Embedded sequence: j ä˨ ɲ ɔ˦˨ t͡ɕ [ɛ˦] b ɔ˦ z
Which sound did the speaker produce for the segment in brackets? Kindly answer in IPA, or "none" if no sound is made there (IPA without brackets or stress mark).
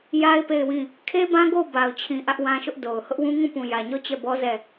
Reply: ɛ˦˨